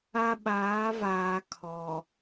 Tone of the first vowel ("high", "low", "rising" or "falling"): high